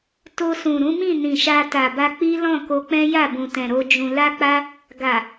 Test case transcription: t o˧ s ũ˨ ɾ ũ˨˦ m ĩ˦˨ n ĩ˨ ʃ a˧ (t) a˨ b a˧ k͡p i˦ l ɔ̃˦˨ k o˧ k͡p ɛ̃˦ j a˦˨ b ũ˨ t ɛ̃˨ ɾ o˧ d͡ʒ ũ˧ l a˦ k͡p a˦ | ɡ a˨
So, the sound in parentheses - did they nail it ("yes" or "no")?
yes